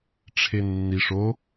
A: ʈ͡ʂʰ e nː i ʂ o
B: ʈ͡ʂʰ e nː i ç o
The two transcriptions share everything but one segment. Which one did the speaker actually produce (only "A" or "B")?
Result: A